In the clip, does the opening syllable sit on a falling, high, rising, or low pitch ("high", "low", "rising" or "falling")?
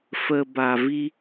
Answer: low